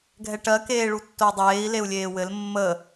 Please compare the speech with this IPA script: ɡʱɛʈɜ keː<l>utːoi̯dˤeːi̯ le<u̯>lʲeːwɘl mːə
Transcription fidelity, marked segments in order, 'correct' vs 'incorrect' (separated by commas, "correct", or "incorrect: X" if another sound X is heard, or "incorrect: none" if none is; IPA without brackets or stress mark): incorrect: ɭ, correct